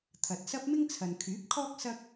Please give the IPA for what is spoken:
t̪ʰ ɐ˨ t̚ s ɐ˥ p̚ m ɪ˥ ŋ t͡sʰ ɐ˨ n kʰ yː˨˥ p̚ kʰ ɔː˥ k̚ s ɐ˥ k̚

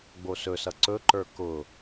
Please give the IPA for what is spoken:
ɡ͡b o s ɵ s ʌ ǀ ɵ ǃ ə˞ k ʊ

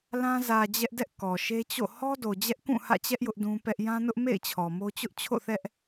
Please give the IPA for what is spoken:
l ã˦ z ä˨ d͡ʑ ɛ˦ ʔ d ɛ˦ ʔ k ɔ˨ ʃ e˦ t͡ɕ o̰˦˨ h ɔ˦ d o˨ d͡ʑ ɛ˦ ʔ k ũ˦˨ h ä̰˦˨ t͡ɕ ɛ˦ ʔ j ʊ˦ ʔ d ũ˦ p ɛ˦ ʔ j ã˦ n ʊ˦ ʔ m ḛ˦˨ ɪ̯ t͡ɕʰ ɔ˨ m o˦ t͡ɕ ʊ˦ ʔ t͡ɕʰ o̰˦˨ θ ɛ˦ ʔ

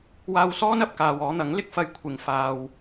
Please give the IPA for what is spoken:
w aː˧ w s ɔː˥ n ɐ˨ p̚ k aː˨ w ɔː˨˧ n̪ ɐ˨˥ ŋ l ɪ˧ k̚ f ɐ˧ j kʷʰ ɪ˨ ŋ f aː˨ w

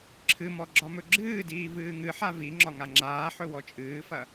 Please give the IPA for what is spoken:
ǁʰ ɨ m ɔ ɡ͡ǁ ɒ m ɵ ɡ͡ǁ ɨː d iː v ɨː ŋ ɨ ħ a v i ŋ͡ǁ ɒ ŋ a ŋ͡ǁ aː ħ ɵ w ɔ t͡ʃʼ ɨː f ɐ

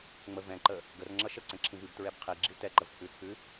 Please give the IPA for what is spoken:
ŋ͡m ə v ɛ̃ ǃ ə | ɡ ə r ŋ͡ǁ ʌ ʃ ə ǀ ɛ̃ ǁʰ ĩ v i b t ɹ ɛ b qʰ i ɡ͡ǁ i t ɛ ǃ ə v t͡sʰ ʉ t͡sʰ ʉ

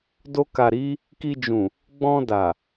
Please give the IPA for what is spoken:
d o˧ k a˨ ɾ i˨˦ | k i˧ d͡ʒ ũ˨ | ɡ͡b ɔ̃˧ d a˨

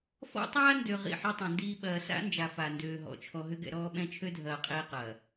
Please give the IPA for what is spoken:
f ɔ̰˦ tˤ aː˦ n d ø˨ ʁ ḭ˦˨ ħ ɛ˦ tˤ ɛ̃˨ n d iː˦ ɓ ɐː˨ s a̰˦ n d͡ʒ a˨ f a˨ n d øː˨ ɦ ɔ̰˨ t͡ʃʰ ɔ˨ ɦ ʏ˦ ɡ ɛ̰˨ ɾ ɔː˦ ɓ ɛ̃˦ t͡ʃʰ ø˦ dʱ ɐː˨ qʼ iː˦ q ɐː˨

